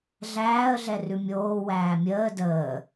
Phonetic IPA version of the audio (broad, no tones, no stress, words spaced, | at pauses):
ɮæːə̯ɮɛrʉ mʲoː wæːmʲəː dəː